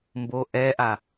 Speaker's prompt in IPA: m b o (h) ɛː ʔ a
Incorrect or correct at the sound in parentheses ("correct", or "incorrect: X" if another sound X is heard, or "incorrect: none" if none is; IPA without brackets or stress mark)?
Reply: incorrect: ʔ